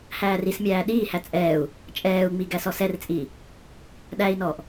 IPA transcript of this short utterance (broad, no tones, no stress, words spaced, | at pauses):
hæːrismʲæː ɗiːhæ t͡sʼɛːu̯ | t͡ʃʼɛːu̯ŋ͡mi ɡæsɔsɛrt͡sʼiː | ɗæi̯nɔːʔ